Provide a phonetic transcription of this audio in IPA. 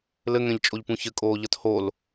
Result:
lɘŋɛ̃ʎt͡ʃʼoʎpũ çɘkʼoːʎʌt hol

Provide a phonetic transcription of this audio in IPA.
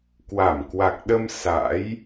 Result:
kwa˧˩mkwa˨˩k̚ɗə˧m sa̰˧˥j

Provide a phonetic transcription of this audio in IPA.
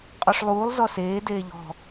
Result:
qʼɔʂlˠuːlˠ zɔseː deːʎɔ̤

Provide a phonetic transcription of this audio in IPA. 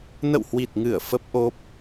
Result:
nə̰˧˨whwi˨˩t̚ŋɨ˧˩ə̯ fə˦˥p̚ ʔo˦˥p̚

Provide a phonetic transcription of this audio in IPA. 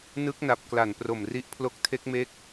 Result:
nɯ˦˥k̚na˨˩p̚ kla˨˩npro˨˩mri˦˥ʔ pʰlo˥˩k̚ tʰe˦˥k̚me˦˥k̚

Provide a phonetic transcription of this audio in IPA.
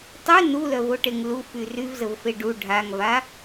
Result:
tˤy nulœvoʈeŋ lufy ryvzəvfe ɖu ɖʱaŋva

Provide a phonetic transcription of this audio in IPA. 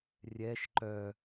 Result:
rʲɛʃ ǃœ

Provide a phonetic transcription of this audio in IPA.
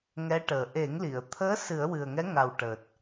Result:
ŋɛ˧˥ʈəː˨˩ ʔe˨˩˦ŋli˨˩˨ə̯t̪ʰəː˧˥ sɨ˨˩˦ə̯wɨ˨˩ə̯ŋɛ˧˥ ŋa˨˩wʈəː˨˩t̚

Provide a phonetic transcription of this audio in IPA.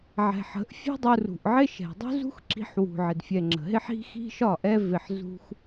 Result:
ʕɛ̤˨ħə̤˨˦ʔ fʲṳ˦dˤu˧rṳ˨ʔʕɪ˦ ʃɛ̤˨dˤṳ˦ zṳ˦xǁi̤˧ħwṳ˨ʕɪ˨d fʲɛ˨ŋ͡ǁə̤˨ɦɪ˦ħ i̤˦xi̤˦ʃɒ˦˨ ʔɛ˦vɪ˧ħ zṳ˦x

